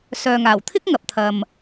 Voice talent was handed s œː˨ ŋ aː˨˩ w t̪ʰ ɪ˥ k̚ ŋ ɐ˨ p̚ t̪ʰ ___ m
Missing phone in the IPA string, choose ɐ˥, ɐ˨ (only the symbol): ɐ˨